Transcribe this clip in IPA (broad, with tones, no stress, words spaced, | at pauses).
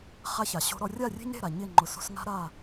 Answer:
χa˦ça˨ɕo̤˦ɾɔ˦ rʲa˦˨rʲe̤˦ɲɾe̤˦˨ ɾa˨ɲɪ˦˨ŋ͡ǃʊ˨so̤˦s ŋa̤˦ɾa˦˨